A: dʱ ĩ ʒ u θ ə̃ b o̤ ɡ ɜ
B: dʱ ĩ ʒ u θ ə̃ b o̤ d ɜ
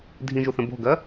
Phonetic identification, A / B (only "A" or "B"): A